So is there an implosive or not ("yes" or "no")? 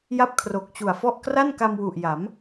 no